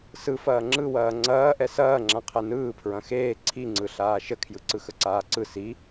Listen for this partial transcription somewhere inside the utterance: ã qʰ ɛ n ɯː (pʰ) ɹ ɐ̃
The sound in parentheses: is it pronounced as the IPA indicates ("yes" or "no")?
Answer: yes